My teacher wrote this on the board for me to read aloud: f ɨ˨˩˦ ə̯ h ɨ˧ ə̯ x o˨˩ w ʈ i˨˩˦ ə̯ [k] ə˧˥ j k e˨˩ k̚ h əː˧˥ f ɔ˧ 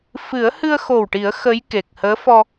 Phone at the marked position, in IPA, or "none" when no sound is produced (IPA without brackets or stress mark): x